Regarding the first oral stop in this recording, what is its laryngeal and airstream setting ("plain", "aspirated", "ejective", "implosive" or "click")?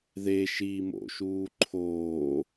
click